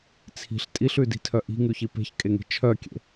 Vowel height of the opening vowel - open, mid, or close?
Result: close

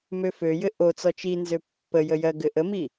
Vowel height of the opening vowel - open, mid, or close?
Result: mid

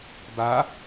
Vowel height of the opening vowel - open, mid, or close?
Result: open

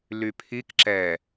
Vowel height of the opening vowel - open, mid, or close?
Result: close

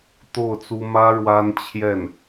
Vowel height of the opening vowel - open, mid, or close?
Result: mid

